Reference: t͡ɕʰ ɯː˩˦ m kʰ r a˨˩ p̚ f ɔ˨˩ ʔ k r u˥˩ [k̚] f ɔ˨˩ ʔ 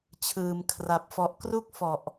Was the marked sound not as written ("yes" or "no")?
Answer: no